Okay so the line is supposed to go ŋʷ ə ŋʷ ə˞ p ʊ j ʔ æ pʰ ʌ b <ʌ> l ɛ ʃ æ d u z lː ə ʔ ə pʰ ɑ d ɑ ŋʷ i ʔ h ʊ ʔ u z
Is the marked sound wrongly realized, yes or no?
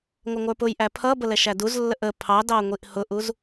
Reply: yes